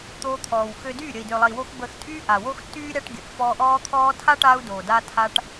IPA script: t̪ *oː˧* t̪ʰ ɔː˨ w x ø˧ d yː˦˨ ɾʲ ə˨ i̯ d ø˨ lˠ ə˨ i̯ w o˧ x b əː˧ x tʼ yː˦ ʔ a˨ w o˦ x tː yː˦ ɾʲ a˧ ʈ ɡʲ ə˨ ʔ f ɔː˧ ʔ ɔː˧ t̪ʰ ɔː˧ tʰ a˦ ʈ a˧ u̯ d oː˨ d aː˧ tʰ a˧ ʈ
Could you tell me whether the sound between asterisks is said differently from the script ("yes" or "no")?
no